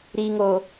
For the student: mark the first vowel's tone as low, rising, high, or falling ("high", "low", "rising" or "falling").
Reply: low